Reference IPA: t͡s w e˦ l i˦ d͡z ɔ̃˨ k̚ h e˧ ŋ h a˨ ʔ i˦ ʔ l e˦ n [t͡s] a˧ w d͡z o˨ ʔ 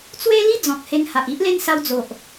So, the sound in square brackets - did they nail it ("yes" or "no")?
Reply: no